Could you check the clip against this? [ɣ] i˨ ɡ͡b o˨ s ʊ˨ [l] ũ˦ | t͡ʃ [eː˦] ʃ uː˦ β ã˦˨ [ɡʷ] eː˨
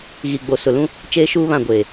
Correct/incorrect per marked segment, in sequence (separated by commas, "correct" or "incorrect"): correct, correct, correct, correct